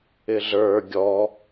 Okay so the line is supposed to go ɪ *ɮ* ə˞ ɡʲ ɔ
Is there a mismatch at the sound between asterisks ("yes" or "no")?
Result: no